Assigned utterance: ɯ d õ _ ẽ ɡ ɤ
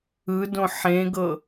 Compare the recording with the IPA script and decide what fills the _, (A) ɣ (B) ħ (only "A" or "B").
B